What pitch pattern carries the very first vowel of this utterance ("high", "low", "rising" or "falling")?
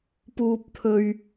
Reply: high